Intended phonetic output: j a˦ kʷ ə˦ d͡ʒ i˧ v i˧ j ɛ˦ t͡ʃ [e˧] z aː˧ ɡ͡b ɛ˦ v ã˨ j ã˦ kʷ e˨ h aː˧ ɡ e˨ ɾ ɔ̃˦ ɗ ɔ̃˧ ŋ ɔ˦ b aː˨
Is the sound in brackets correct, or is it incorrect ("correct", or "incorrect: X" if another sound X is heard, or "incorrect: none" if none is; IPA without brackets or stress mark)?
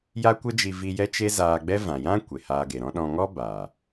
incorrect: e˦